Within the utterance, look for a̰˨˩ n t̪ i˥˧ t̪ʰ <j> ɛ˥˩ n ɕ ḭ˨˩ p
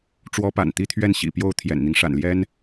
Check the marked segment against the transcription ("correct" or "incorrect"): incorrect